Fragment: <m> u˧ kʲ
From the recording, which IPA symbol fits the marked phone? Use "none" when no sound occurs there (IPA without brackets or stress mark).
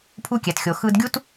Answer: pʰ